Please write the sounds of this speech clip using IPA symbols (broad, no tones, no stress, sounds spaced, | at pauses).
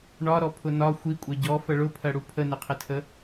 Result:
ɳ ɒ ɾ ɔ pʰ ʊ n ɒ xʷ i kʷʼ ɛ ɟ ɔ f ə ɭ ʊ pʰ ɜ ɽ u pʰ ə n ɪ qʰ ɪ tʰ ə